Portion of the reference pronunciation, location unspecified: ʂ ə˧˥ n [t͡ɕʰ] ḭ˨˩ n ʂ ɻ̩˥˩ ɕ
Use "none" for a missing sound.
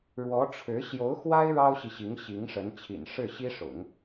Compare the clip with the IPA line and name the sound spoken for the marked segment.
t͡ɕʰ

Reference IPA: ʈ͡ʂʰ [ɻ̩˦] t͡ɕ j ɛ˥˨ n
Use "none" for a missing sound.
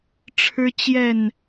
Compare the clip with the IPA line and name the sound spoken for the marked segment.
ɻ̩˦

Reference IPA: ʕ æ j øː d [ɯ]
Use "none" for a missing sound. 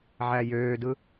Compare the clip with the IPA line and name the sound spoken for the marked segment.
ɯ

